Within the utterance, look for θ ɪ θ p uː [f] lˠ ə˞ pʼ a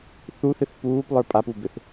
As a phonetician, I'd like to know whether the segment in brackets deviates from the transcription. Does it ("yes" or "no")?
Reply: yes